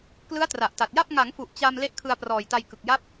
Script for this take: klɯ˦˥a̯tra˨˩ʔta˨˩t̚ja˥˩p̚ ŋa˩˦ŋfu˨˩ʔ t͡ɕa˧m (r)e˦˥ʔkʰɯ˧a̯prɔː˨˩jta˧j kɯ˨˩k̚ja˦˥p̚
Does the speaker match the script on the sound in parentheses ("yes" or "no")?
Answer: no